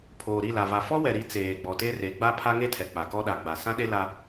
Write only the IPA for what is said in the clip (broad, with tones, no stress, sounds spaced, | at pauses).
pʰ oː˨ ɾ i˦˨ l a˨ v a˨ f ɔ˦ w ɛ˨ ɾ i˨˦ t͡s eː˨ ɡ͡b ɔ˨ t e˦ r e˨˦ ɡ͡b a˦ pʰ a˦ ŋ e˦ tʰ ɛ˨ k͡p a˨ k ɔ˦ ɗ a˨ ɡ͡b a˨ s ã˦ ɗ e˦ l a˦